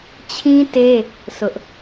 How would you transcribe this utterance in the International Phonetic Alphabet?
t͡ɕʰ ĩ˦ t e˦ | s ʊ˦ ʔ

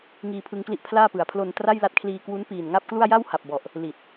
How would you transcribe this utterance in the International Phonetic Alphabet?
ŋ iː˧ pʰ ɯ˧ ŋ k l i˥˩ ʔ pʰ l aː˥˩ p ɯ˩˦ a̯ pʰ l o˧ n t r a˥˩ j l a˦˥ t̚ kʰ l iː˧ k w u˦˥ n p iː˨˩ n ŋ a˥˩ p̚ k l u˥˩ a̯ j a˥˩ w h a˨˩ p̚ b ɔ˨˩ ʔ | l i˨˩ t̚

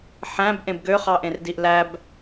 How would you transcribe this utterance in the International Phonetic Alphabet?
ħ æ̃ b ʔ ẽ b ɡ ø χ ɑ ʔ ẽ r d i ʔ l æ b

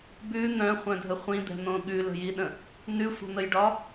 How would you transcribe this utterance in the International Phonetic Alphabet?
b ʉ n̪ œ̃ χʷ œ̃ dʱ ə χʷ ĩ d̪ ɛ̤ n̪ õ ɠ ʉ l ə̤ j i ɗ ə̃ | n ʉ sʷ ə̤ n̪ ə j ɖ ɒ

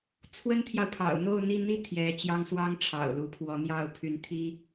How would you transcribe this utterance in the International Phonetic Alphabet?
t͡sʰ w ə˥ n t̪ʰ j ɑ˨ ʊ̯ pʰ ɑ̰˨˩ ʊ̯ n̪ o˥˧ ʊ̯ n̪ i˥˧ n̪ i˥˩ t̪ʰ j ɛ˧˥ t͡ɕ j ɑ˥ ŋ s w ɑ˥ ŋ ʈ͡ʂʰ ɑ̰˨˩ ʊ̯ l u˧˥ pʰ w ɔ˧˥ n̪ j ɑ˥˩ ʊ̯ pʰ y˧˥ n t̪ʰ i˥

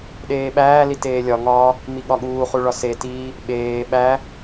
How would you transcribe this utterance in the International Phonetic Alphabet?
ɗ eː ɓ æː l i t eː lʲ ɒ ŋ ɒː | m i ɠ ɒ ɠ uː χ u ɭ ɒ s e t iː | ɓ eː ɓ æ

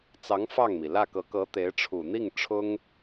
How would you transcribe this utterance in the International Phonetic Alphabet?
t͡s ɑ˧˥ ŋ f ɑ˥˩ ŋ m i˩ l ä˥˩ k ɤ˧˥ k ɤ˧˥ t̪ e˧˥ ɪ̯ ʈ͡ʂʰ u˨˩ n̪ i˥˩ ŋ ʈ͡ʂʰ ʊ˥ ŋ

